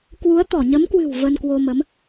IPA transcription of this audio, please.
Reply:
k w u˨˦ ə̯ t̪ ɔ˧˩ ɲ ə˨˦ m k w ɨ̤˨˩ w v ə˧ n k w o˧ m ə˨˦ m

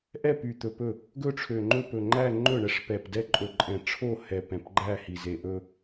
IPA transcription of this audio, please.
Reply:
ʔ ɛ˥˧ p y˨˩ t̪ ɵ˨˩ p ɵ˥˩ | ɡ ɵ˥˧ ʈ͡ʂʰ ø˨˩ ŋ͡ǃ ɵ˥˧ p ɵ˨˩ ŋ͡ǃ æ˥˧ ŋ͡ǃ ɵ˥˩ ɳ ɛ˥˧ ʂ p ɛ˨˩ p d ɛ˥˧ ǃʼ ɵ˨˩ ǃʼ ɛ̃˨˩ ʈ͡ʂʰ o˥˧ h ɛ˨˩ p ɛ̃˨˩ p ɡ͡ǃ æ˥˧ h i˨˩ z e˨˩ ʔ ɵ˥˧

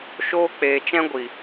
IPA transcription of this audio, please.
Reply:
ʃ oː˦ k͡p eː˨ t͡ʃ ɛ̃˦ ɡʷ i˨

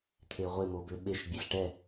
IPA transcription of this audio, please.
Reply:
t̪ʰ e ʁʷ e m o b ø ɓ e ʃ bʲ e ɬ ʈ ɛ

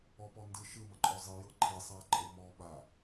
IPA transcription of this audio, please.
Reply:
ɔ p ɔ n d ɯ ʃ ɯ m ə ǃʼ ɔ zˤ i j ɤ ǃʰ i sˤ a ǃʼ ɤ m ɔ ɓ a

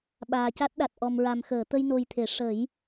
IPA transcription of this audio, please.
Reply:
ɓ aː˨˩ c a˦˥ t̚ ɗ a˨˩ t̚ ʔ ɔ˨˩ m ɹ a˨˩ m x əː˨˩˨ t̪ ə˧ j n o˧ j t̪ʰ e˨˩˦ ʂ ə˨˩˦ j

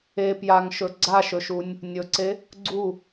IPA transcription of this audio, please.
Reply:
e p j a ŋ ʃ ɵ ɡ͡ǀ a ʃ ɵ ʃ u nʲ | nʲ ɵ ǀ e | ɡ͡ǀ u

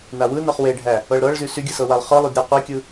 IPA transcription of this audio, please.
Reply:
n a w ɯ n ɤ χ w e ɖʱ æ | ɤ ɭ ɾ ɤ ɭ z y s y ɡʲ ɯ s ɤ w a lˠ χ ɯ lˠ y d ɾʲ ɤ qʷ i kʲ ɯ

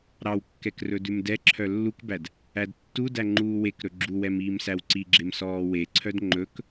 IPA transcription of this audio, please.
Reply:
ɾ ɑ w kː ɛ k r ɵ d ʉ m d ɛ ǁʰ œ lː u k b æ d | æ d tː u d æ ŋ͡ǃ uː w e k ɾ ɵ ɡ͡ǁ u w ɛ m iː m s æ w ǀ i ɡ͡ǁ e m s ɔː w e ǀʰ œ d ŋ͡ǃ ɵ k

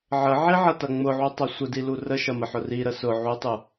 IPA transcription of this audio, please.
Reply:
ʕ ə ʕ i ʕ ɐ t ɐ ŋ͡m ʊ ʕ u tˤ ɐ sʷ ə d i l u r ə ʃ ɐ m ə ħ ʊ r i ɾ ə s ʊ ʕ u tˤ u

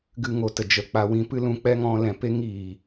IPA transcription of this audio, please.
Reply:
ɡ ɨ˧ ŋ o˨ t ə˨ d͡ʒ ə˨ k͡p a˦ w ĩ˧ p ɨ˦ l ũ˧ k͡p ɛ˦ ŋ ɔ̃˧ l ɛ̃˨ p e˦ ŋ iː˨

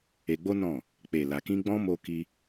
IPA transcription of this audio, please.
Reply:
e˧ ɡ͡b o˦ n ɔ̃˦˨ | k͡p e˨ l a˨ k ĩ˧ ɡ͡b ɔ̃˦ m o˧ k i˧

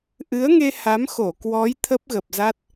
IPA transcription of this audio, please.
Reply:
ʔ ɨ˨˦ ə̯ ŋ e˧ h a˨˦ m x o˧˩ k w ɔ˨˦ j t̪ʰ ə˦˥ p̚ ɣ ə˨˩ p̚ z a˦˥ t̚

